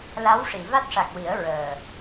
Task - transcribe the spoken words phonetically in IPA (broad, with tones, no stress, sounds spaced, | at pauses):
l a˧˥ w ʂ i˨˩˨ v a˦˥ t̚ ʂ a˨˩ k̚ w i˨˩˦ ə̯ ɹ əː˨˩